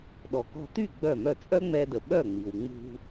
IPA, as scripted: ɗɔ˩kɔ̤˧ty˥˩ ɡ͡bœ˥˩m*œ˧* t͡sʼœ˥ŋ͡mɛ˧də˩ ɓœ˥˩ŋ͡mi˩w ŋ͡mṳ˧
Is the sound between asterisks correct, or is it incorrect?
incorrect